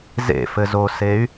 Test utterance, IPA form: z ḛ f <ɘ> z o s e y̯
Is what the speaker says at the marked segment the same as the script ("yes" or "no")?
yes